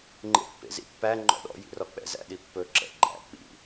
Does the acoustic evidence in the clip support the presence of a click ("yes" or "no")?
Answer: yes